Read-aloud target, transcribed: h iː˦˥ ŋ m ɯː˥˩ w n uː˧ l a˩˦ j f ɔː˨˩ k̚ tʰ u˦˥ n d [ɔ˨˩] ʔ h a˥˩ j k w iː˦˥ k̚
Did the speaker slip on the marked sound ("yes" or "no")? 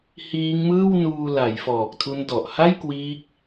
no